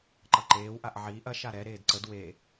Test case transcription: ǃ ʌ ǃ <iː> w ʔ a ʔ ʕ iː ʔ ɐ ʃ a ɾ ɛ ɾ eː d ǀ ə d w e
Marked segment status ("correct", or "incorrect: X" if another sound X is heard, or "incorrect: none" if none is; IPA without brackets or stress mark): incorrect: eː